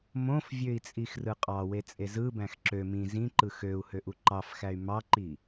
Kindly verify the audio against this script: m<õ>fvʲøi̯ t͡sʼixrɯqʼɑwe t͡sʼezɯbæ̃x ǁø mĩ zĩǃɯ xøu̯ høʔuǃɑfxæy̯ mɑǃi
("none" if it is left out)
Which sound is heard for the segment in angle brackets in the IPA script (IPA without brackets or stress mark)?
õ